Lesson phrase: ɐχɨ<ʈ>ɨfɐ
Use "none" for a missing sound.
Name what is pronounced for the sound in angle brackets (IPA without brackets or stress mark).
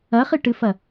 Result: ʈ